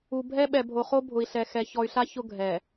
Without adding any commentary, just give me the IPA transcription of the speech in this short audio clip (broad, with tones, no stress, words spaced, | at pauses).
u˨ bʱɛ˦ɓɛ˨bʱo˨χo˦ bʱʊ˨i̯ɬɛ˨ xɛ˨ çɔ˨y̯ɬa˦ çʊ˦ ɡʱɛ˨